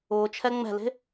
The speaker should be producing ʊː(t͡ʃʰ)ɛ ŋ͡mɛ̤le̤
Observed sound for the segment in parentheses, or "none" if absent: t͡ʃʰ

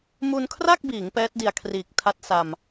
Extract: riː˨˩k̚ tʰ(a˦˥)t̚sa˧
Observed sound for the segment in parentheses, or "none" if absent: a˦˥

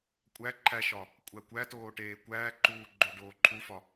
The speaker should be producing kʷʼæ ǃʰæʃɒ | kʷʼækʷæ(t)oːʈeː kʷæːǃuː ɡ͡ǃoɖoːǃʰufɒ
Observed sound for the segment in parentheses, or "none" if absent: t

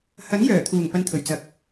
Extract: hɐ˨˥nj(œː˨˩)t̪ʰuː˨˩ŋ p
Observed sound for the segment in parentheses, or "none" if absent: œː˨˩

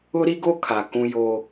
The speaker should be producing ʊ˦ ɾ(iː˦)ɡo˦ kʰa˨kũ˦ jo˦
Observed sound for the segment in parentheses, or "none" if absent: i˦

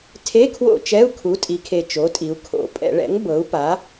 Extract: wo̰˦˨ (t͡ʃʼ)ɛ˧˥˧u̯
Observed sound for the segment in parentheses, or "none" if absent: t͡ʃ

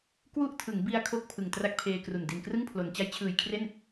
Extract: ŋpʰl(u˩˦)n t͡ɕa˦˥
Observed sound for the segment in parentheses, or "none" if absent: o˩˦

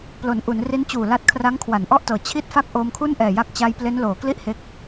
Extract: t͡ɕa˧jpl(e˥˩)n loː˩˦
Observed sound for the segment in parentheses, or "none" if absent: e˦˥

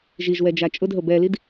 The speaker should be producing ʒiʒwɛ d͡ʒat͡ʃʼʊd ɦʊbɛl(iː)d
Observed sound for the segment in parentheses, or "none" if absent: i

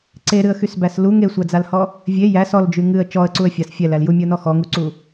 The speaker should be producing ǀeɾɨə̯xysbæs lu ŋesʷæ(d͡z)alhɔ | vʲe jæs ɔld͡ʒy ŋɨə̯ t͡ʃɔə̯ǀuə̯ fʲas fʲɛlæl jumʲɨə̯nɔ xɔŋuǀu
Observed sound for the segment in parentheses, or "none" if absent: d͡z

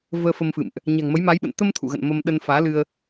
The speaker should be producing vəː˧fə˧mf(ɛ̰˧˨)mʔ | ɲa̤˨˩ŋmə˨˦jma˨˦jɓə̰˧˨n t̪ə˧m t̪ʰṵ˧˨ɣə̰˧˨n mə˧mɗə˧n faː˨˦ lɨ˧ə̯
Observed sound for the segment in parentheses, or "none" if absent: ɨ̰˧˨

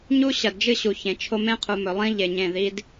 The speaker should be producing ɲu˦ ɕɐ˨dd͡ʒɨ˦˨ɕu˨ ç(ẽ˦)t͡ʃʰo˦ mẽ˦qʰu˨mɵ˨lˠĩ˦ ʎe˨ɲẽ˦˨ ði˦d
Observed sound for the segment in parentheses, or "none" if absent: ẽ˨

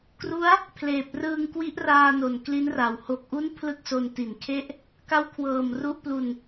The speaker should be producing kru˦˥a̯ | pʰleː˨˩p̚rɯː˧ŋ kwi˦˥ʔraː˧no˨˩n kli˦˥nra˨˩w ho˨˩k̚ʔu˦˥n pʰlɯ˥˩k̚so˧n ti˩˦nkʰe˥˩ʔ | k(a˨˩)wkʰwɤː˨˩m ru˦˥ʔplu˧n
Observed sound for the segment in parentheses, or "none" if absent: a˦˥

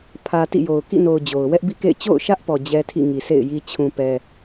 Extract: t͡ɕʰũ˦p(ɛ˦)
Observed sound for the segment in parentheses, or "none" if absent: ɛ˦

